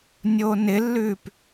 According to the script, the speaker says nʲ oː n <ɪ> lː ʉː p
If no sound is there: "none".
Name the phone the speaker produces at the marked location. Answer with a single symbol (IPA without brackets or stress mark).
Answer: ɪ